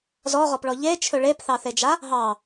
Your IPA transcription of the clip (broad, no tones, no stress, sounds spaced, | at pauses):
z ɔ ʁ ɔ p ɭ ɔ ʎ e t͡ʃʰ ɵ ɭ e p θ ɑ θ e d͡ʒ a | ɦ ɑ